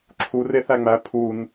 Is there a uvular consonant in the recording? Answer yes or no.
no